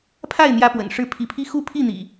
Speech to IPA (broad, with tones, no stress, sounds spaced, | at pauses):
pʰ a˥˨ ɪ̯ n̪ j ä˦ p w ə̰˨˩ n ʂ ɻ̩˥˨ pʰ i˨˦ pʰ i˦ x u˦ pʰ i˥˨ n̪ ḭ˨˩